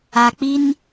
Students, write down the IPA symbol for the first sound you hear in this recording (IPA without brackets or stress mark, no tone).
a